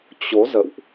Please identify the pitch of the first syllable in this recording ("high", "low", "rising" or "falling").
rising